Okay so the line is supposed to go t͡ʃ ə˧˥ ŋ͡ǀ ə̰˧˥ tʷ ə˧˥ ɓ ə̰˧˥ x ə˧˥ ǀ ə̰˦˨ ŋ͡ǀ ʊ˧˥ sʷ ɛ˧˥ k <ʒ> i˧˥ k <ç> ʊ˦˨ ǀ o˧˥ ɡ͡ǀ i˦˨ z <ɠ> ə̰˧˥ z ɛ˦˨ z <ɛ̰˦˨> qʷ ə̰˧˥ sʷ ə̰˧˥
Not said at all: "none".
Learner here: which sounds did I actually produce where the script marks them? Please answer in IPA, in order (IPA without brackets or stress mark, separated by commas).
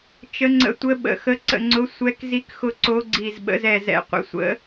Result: z, x, ɓ, ɛ̰˦˨